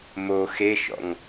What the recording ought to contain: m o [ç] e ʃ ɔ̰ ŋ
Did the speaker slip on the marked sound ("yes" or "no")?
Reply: yes